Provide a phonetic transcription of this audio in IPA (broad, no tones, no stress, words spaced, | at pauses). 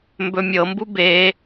mbɵmʲɤmbu be